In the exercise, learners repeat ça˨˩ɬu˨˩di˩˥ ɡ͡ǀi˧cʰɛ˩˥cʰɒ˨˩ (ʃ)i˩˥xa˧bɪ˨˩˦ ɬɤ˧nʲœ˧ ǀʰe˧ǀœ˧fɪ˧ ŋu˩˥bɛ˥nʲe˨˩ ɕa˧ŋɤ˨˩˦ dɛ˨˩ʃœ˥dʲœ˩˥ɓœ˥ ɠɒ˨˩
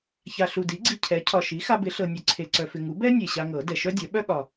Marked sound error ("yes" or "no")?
no